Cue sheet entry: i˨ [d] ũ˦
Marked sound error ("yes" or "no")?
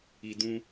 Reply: no